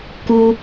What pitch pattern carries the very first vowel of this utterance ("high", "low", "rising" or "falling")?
low